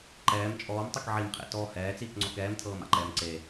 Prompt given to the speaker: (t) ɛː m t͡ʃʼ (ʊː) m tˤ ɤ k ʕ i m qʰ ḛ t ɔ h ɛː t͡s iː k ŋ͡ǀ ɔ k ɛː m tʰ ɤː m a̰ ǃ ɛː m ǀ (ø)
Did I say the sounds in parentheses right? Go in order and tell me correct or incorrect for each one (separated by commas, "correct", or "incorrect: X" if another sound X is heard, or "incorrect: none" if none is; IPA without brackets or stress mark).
incorrect: ǃ, incorrect: ɔː, incorrect: e